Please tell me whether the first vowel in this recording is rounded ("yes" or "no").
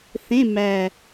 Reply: no